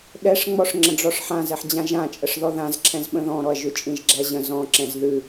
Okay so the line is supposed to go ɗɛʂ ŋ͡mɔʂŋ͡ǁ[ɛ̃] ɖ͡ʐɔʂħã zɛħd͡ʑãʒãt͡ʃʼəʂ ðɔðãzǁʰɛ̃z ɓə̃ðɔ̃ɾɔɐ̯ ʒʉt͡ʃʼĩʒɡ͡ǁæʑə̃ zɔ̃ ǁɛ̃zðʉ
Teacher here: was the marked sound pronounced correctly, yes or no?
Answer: no